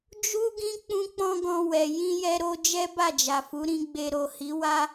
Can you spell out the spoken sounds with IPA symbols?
d͡ʒu˦ɡĩ˦ k͡pũ˦k͡pɔ̃˦ɡɔ̃˧wɛ˨ jĩ˧jɛ˧ɾo˧ d͡ʒɛ˦ba˦˨d͡ʒa˨fu˨˦ ɾĩ˧ɡ͡be˧ ɾo˨hi˨˦wa˦

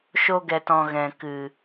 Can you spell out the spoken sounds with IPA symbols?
ʃo˧ɡɛ˨tɔ̃˨ ɣɛ̃˨kɨ˨

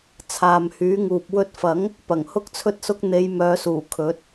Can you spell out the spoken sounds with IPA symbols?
t͡sʰaː˨mhyː˨˥ŋuː˨p̚ wɵ˨˥t̚fɐ˨˥ŋ | pɐ˨˩ŋhʊ˥k̚t͡sʰɵ˥t̚sʊ˥k̚ n̪e˨˧jmœː˨˧suː˨˩ kʰɵ˨˥t̚

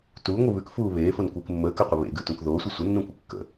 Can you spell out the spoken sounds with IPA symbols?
tuːŋʷɨ βʉkfuː βeːfonkʷeːk mːəːkəqʷɨ βḛɡʉtũk ðoːsʷɨ sʷənːũkʷɨ kːə̰

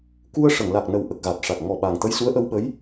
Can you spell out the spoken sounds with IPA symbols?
ku˧ə̯ ʂə˨˩˨ŋla˨˩k̚ nə˨˩wʔə˨˩k̚ ɣa˨˩t̚ʂa˨˩k̚ ŋɔ˨˩ ɓaː˨˩ŋt̪ə˧jsu˧˥ə̯ ʔə˧wɓə˧˥j

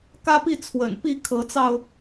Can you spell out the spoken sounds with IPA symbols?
kä˦pi˥˨ t͡sʰwə̰˨˩n pi˥˨kʰɤ˨˦t͡sɑ˧ʊ̯

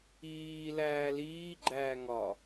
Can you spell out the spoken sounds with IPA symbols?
iːlæː liːɡ͡ǃæː ŋɒ

